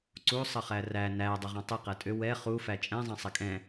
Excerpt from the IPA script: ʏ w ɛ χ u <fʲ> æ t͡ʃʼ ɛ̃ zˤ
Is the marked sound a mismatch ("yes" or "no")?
yes